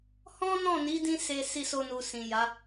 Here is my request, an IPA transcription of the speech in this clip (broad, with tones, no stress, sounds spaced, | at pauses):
h ɔ̃˦ n ɔ̃˦˨ n i˨˦ d ĩ˧ s e˧ s i˧ s o˧ n u˨ s ĩ˨ j a˨˦